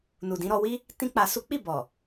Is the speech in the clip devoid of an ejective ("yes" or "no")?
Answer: yes